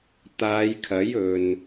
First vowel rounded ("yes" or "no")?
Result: no